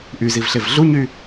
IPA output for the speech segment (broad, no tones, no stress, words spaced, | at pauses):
ʔyzivɬev ɮuɲy